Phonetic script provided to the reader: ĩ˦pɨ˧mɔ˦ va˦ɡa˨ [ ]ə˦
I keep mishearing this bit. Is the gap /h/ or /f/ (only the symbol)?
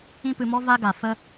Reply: f